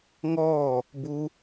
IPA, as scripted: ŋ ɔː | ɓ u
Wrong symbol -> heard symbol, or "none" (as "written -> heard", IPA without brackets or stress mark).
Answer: ɓ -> b